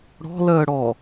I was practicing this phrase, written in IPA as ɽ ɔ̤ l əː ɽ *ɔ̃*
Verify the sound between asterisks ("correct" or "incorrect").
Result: incorrect